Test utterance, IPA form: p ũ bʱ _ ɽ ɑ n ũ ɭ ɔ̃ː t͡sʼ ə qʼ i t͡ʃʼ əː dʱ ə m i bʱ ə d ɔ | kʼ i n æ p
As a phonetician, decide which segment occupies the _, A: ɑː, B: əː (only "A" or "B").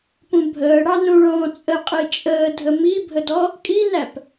B